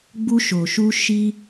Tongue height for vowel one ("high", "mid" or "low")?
high